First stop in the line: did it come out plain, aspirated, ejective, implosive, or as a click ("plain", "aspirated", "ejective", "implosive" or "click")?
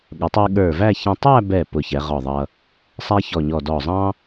implosive